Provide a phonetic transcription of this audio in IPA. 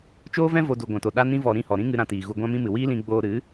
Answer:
t͡ʃoː˦vɛ̃˦ vo˧ du˨ ɡʷã˨to˨ ɗa˦ nĩ˦ vɔ˨ ɾĩ˦˨hɔ˨ɾĩ˦ŋɨ˧ ɾã˧tiː˨ɣu˧ ɡʷã˦mĩ˦mɨ˨ wiː˦lĩ˧ ɡ͡boː˧ɾɨ˨˦

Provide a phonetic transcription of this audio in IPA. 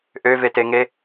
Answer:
ʔøveteŋe

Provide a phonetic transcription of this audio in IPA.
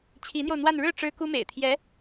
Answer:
t͡ɕʰi˧˥n̪jo˧ʊ̯n̪wa˥˧n ɻɻ̩˥˩ ʈ͡ʂɻ̩˥ku˥mḛ˨˩ɪ̯t̪ʰjɛ˧˥

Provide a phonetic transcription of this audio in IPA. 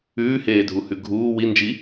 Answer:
ʉːheːdʱuhʉ ɡʱuː wind͡ʒi

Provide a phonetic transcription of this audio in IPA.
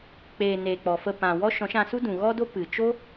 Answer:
k͡peː˨neː˨ k͡pɔ˨fə˧ pã˨wɔ˦ ʃɔ̃˨˦ʃã˧su˦ dũ˨ɣɔ˦do˦ pɨ˨ t͡ʃo˦

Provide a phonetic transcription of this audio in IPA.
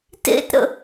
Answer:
tḛtɾə̰

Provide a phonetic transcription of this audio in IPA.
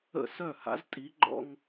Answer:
ə̰˥˩ sœ˥˩ha̰˧˥ztʼi˧˥ ɡ͡ǃɔ̰˥ŋ

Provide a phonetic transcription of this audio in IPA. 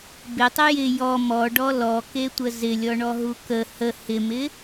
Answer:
bɪtˤə jɪ jɔ mɔɖɔ lɔketʷə zɪlʲɔɳɔɦu kə hə hɪmɪ

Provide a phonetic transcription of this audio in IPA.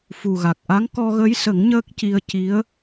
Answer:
fu˨˩ɣa˨˩k̚ ʔa˧˥ŋkɔ˧ɣə˧˥jsə˨˩˦ŋ ɲəː˦˥k̚ci˧ə̯ ci˧˥ə̯

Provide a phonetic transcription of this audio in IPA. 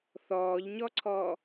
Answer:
θɔːʎɲɔǀʰɔː

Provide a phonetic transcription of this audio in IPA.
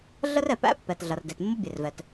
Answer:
ɮə˥r ɛ˩pæ̰˥pːɛ˩t ɮɐ˩rde˩t mːo˥bʲe˩rvɛ˩t

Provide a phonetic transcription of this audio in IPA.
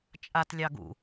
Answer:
t͡ʃʼatlʲɑ ɡṵ

